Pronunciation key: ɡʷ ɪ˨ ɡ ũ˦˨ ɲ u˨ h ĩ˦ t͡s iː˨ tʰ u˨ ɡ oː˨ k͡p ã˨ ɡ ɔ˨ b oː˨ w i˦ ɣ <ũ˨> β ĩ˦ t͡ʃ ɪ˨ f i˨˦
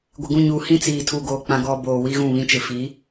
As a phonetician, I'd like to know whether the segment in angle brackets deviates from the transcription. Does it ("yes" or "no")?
yes